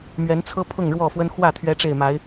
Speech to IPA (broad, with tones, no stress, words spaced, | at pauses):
mɥɛ˨˦nt͡sʰɤ˦pʰʊ˥˨ŋ ɻwɔ˥˨fwə˦n xwä˥˨ t̪ʰɥɛ˦ʈ͡ʂe˥˨ɪ̯ ma˨˦ɪ̯